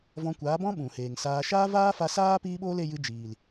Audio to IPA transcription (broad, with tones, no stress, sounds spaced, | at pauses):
v ɔ̃˧ kʷ aː˨˦ b ɔ̃˦ ɓ ũ˨ h eː˨ ŋ s aː˧ ʃ aː˦ v aː˦ f a˧ s aː˦ p iː˦ ɓ oː˦ l e˧ j ɨ˧ d͡ʒ iː˨ l